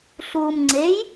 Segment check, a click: present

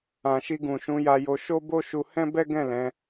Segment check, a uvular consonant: absent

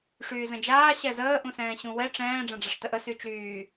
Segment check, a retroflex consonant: present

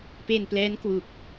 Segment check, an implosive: absent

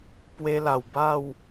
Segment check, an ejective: absent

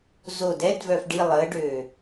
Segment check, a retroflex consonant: present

